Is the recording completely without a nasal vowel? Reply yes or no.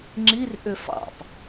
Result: yes